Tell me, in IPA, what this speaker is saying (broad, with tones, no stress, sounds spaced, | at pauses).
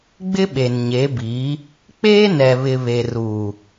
ɡ͡b ɪ˦ ɓ e˨ n ɲ e˨˦ b iː˨˦ | k͡p eː˦ n ɛ˨ β ɪ˨ β e˨ r uː˨